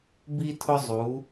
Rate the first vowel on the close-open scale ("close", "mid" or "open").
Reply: close